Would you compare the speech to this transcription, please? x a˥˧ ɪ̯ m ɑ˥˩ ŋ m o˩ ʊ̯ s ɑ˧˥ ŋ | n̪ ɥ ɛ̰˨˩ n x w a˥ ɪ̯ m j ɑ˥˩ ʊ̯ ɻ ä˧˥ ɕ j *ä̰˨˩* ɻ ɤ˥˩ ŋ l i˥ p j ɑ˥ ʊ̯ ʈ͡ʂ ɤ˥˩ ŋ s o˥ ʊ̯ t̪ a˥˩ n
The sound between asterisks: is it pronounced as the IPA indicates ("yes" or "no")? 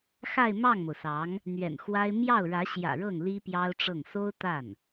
yes